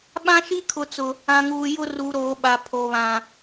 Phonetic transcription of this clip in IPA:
ɓ ã˦ ʃ i˦ kʰ ʊ˨ t͡s ʊ˨ | ã˨ ŋ uː˨ j ʊ˦ r u˨ ɾ oː˨ ɓ a˨ pʰ o˨ β ã˨

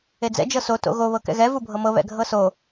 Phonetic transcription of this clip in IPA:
e d͡z ɛ̰ d͡ʒ ɤ s o t o̰ ɣ o β ɤ k ɛ̰ ɣ ɛ v u bʱ ɤ m ɤ β ɛ̰ ɡʱ ɤ s o

